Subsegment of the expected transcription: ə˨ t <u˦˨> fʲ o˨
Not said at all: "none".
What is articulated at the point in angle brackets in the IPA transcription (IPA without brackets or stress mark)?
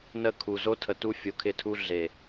u˦